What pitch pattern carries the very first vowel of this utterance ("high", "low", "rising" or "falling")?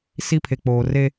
high